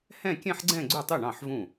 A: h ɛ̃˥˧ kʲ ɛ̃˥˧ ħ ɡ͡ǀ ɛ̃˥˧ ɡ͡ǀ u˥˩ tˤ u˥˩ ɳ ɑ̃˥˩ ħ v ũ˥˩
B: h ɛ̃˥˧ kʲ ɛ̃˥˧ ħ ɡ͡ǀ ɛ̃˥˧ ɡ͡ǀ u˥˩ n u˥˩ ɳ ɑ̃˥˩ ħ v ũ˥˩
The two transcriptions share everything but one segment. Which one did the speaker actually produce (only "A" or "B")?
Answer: A